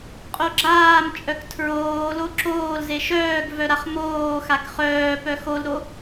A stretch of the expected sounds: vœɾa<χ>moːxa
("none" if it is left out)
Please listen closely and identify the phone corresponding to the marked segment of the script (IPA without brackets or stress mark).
χ